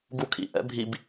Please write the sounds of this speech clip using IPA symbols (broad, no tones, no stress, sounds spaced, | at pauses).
ɡ u kʰ ḭ ʔ ɛ̰ bʱ i b